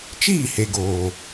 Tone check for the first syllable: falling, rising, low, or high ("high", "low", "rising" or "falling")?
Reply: falling